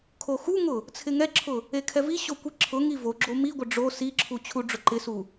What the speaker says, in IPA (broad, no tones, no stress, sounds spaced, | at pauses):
kʰ o x u ŋ ʊ | t͡sʰ ɪ ŋ ɛ ǁʰ ʊ | e kʰ ɛ v i ɕ o kʷ i ǁʰ ʊ ŋ i v o ɡ͡ǁ o m i ɡʷ ɪ ɖ͡ʐ o s i ǁʰ u t͡ɕʰ u ɖ͡ʐ ʊ ǃ ɪ s u